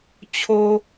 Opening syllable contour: high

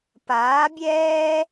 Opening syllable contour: rising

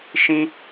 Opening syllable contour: high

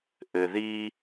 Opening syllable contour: low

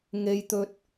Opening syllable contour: high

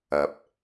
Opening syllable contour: low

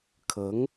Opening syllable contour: rising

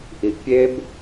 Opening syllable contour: rising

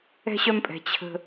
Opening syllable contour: high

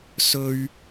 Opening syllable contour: high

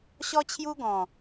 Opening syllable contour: high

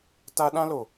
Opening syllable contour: high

